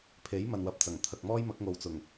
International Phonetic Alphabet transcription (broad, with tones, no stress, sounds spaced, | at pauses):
pʰ e˨˥ j m ɐ˨ n w ɐ˨˥ p̚ t͡s ɐ˨˩ ŋ t̪ʰ ɐ˨ k̚ m ɔː˥ j m ɐ˨˥ k̚ ŋ o˨ w t͡s ʊ˨˩ ŋ